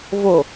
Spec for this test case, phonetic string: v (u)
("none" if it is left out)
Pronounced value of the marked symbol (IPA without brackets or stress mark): o